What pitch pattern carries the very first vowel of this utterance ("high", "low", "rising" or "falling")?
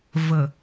low